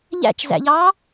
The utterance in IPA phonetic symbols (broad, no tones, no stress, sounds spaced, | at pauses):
ʎ æ̰ t͡ʃ z æ̰ ʎ ɑː